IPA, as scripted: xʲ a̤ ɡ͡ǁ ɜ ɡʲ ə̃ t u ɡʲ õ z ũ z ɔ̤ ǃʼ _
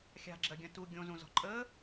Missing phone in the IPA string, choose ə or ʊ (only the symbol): ə